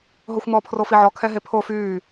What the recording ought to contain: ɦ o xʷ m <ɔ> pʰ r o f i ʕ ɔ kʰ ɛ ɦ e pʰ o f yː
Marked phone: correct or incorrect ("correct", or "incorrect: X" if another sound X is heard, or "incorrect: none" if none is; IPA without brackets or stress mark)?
correct